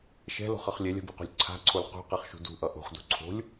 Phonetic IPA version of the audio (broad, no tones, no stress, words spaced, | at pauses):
ʃɛ̤lo̤χʌχ lʲɛlʲa̤biqo̤lʲ ǀʰa̤ǀʰol qṳqɛχʃṳ dṳʔʌ ʔo̤χdo̤ ǀʰo̤lʲ